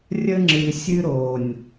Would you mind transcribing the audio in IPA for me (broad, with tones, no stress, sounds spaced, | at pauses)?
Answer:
rʲ ə˦ ŋ͡ǁ ɨ˨ sʲ ɨ˦ ɾ o˨ nʲ